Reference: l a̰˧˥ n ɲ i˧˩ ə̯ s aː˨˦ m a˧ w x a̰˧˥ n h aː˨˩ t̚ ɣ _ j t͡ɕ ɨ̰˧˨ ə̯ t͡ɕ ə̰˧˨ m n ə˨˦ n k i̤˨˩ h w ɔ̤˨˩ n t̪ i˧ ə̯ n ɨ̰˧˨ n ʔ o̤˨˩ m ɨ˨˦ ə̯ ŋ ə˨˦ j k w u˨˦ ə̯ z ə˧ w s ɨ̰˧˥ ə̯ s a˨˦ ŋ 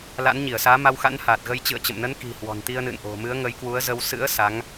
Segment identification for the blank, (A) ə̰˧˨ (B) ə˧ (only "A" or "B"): B